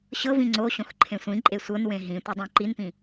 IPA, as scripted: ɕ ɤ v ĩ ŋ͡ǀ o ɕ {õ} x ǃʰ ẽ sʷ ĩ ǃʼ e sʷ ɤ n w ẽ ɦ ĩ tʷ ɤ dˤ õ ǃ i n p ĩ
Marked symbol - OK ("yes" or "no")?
yes